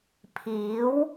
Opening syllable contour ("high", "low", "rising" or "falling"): rising